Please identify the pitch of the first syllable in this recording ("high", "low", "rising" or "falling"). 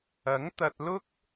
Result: rising